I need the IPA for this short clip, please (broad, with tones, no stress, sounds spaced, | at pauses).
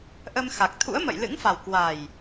ʔ ə˧ m x a˨˩ k̚ t̪ʰ ṵ˧˥ ə̯ m ə̰˧˨ j l ɨ̰˧˥ ŋ f a˨˩ w k w a˨˩ j